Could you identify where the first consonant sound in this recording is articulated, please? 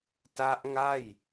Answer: alveolar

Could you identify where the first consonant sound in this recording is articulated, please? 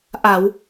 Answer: glottal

